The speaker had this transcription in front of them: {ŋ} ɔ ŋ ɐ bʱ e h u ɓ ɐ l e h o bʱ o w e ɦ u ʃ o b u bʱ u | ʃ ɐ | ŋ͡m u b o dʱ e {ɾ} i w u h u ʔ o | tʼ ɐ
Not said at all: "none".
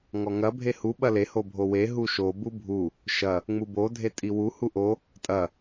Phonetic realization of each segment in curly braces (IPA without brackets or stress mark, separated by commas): ŋ, tʼ